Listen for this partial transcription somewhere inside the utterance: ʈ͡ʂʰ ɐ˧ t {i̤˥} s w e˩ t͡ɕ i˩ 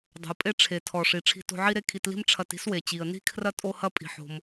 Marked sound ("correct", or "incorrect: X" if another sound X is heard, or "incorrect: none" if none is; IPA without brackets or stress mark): correct